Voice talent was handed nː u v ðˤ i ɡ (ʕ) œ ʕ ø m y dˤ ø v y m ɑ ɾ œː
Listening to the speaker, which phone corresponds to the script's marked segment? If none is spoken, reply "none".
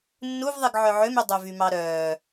ʕ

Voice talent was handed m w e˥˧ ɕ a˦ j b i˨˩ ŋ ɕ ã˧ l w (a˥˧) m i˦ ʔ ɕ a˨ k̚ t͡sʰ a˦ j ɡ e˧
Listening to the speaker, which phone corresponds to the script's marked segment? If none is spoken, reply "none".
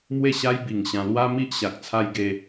a˦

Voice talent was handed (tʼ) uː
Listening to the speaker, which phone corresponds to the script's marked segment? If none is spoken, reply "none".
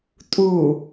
tʼ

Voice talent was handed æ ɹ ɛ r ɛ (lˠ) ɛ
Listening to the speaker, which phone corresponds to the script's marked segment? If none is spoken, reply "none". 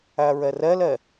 l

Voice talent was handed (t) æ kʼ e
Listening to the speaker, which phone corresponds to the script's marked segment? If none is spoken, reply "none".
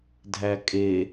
dʱ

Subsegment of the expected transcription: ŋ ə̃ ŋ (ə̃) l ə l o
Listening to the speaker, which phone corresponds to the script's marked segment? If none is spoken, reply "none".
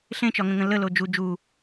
ə̃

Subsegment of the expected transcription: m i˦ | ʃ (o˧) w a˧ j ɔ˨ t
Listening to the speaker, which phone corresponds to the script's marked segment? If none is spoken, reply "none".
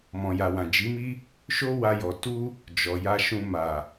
o˦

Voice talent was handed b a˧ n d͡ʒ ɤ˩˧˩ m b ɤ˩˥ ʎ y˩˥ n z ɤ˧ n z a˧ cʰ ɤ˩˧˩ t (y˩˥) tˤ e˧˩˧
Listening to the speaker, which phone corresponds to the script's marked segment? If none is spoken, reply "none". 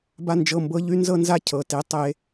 e˩˥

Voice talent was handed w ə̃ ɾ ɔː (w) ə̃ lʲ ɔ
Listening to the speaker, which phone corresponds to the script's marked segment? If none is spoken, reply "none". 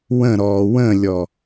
w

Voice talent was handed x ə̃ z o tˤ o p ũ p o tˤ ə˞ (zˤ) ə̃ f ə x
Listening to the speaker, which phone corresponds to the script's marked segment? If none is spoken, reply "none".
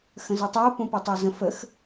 z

